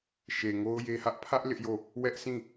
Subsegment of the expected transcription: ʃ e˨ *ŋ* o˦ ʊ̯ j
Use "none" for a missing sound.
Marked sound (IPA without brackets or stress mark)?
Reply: ŋ